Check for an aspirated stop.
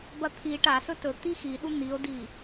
present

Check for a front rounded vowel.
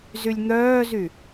present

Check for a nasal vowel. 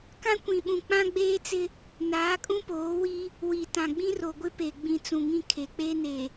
present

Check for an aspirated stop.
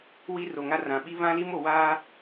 absent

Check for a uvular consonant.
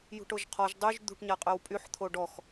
present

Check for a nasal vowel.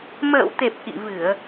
absent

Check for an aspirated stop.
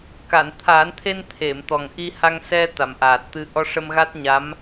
present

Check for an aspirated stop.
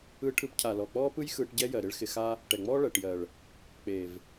present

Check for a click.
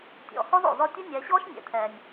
absent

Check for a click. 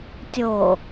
absent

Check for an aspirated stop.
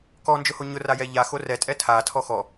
present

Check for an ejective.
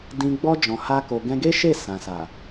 absent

